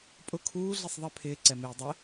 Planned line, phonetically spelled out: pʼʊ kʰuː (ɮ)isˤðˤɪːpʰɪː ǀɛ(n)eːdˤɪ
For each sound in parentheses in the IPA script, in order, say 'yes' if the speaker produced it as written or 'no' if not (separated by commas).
yes, no